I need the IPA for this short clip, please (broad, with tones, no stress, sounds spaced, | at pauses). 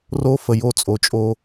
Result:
r o˦ f ə˨ j o˦˨ t͡sʼ o˨ t͡ʃʼ o˦